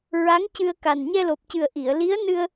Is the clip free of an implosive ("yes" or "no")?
yes